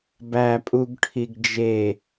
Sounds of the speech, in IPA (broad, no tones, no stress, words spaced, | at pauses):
bæpʼuɡ ʈʰiɡd͡ʒe